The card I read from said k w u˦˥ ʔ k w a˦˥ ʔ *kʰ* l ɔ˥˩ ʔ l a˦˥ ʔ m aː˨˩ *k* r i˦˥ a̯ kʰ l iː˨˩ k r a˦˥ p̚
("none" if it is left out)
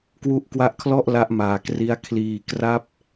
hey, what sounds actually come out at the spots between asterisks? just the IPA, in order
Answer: kʰ, k

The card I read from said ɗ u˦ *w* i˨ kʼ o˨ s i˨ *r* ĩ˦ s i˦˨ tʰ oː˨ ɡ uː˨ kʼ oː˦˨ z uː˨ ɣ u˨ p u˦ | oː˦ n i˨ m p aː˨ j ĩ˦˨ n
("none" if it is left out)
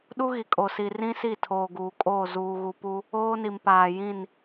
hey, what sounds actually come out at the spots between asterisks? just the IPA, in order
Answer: ɣ, r

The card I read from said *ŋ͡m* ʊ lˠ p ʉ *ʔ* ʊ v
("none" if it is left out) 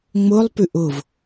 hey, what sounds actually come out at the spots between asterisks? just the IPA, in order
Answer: ŋ͡m, ʔ

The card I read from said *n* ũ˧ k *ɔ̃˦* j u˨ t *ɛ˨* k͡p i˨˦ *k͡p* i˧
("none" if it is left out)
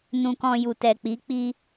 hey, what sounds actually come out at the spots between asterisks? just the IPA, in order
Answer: n, ɔ̃˧, ɛ˨, k͡p

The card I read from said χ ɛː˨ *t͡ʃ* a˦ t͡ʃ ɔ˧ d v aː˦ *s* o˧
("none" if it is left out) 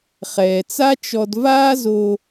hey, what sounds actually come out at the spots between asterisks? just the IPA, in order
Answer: t͡s, z

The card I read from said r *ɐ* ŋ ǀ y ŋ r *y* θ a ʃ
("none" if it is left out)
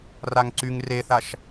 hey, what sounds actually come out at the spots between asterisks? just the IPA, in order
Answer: a, e

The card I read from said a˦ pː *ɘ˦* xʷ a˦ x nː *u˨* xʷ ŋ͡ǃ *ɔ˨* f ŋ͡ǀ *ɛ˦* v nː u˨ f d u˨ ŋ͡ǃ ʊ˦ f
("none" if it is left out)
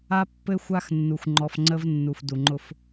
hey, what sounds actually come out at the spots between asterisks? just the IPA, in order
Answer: ɘ˦, u˨, ɔ˨, ə˦

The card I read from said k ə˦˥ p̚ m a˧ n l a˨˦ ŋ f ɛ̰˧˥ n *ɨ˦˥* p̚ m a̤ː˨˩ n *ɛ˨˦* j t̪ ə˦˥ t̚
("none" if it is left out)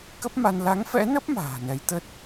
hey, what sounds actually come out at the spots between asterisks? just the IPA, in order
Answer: ə˦˥, ɛ˨˦

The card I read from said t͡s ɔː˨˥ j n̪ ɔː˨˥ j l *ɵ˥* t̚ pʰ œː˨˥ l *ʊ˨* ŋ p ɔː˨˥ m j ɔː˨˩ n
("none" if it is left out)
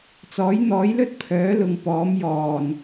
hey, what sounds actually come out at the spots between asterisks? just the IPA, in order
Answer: ɵ˥, ʊ˨

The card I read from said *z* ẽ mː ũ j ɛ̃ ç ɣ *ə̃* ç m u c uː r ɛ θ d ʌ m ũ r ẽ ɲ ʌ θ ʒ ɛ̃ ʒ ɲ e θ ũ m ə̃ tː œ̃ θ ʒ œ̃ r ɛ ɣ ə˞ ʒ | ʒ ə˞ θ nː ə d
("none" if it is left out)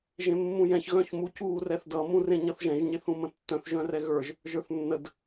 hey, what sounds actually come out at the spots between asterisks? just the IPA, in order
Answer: ʒ, œ̃

